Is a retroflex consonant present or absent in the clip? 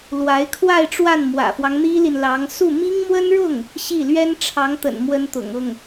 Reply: present